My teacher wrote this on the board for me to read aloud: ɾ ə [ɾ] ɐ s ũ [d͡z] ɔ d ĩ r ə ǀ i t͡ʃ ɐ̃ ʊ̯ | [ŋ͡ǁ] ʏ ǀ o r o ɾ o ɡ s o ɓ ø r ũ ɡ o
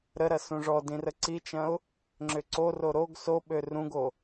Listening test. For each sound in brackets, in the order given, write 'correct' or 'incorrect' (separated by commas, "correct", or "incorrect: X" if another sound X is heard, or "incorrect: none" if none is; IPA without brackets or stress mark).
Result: correct, incorrect: ʐ, correct